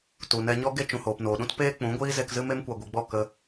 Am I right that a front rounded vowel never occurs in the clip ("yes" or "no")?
yes